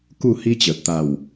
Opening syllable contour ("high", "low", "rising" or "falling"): falling